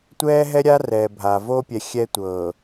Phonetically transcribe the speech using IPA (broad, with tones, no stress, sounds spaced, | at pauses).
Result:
tʷ ɛː˦ ɦ ɛ˦ ɾʲ a˦ r ɛ˨ bʱ a˨ v o˦ pʲ ɛ˨ xʲ ɛ˦ tʷ ɤː˨